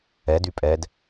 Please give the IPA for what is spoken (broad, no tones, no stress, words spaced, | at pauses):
ɛd ypʼɛd